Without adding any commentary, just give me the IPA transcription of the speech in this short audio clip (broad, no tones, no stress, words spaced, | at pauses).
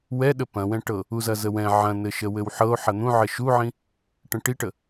wɛɗə pɐ̃wɛ̃ʈɤ | uzɐzəwɛ̃ ʕɐ̃nɘʃə wɘwħɤo̯ ħɐn̪ũ ʕɘʃuʕĩ | ʈə̃ʈiʈə